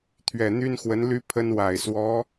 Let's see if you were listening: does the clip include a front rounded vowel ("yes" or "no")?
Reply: yes